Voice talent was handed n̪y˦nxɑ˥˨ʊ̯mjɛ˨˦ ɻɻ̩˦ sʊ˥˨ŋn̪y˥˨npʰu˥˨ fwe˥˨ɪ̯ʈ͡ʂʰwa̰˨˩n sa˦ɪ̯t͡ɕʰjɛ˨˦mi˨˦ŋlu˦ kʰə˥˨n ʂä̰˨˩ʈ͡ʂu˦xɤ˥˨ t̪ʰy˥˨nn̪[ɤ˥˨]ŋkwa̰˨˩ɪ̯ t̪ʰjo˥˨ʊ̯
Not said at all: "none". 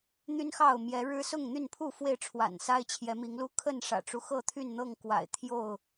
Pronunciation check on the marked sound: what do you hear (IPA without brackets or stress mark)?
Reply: ɤ˥˨